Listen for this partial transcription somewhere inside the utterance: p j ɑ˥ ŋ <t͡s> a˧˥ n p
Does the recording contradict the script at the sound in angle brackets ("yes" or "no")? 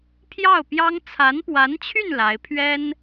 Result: yes